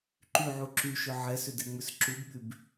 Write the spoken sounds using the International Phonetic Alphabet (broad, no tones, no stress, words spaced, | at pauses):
ǃyʕu ǁyʃʏ ʕɛsʏdɛŋ͡mʏs ǁubɓyb